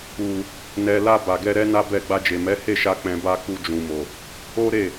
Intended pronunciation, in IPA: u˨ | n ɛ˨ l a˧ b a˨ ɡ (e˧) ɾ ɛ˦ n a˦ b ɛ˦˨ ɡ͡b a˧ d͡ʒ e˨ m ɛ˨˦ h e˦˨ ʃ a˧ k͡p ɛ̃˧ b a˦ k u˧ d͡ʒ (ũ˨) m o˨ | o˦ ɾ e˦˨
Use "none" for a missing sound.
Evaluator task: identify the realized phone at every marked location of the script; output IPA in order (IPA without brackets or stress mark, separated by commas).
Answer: ɛ˧, ũ˨